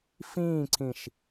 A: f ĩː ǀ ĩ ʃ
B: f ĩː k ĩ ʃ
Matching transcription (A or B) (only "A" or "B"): A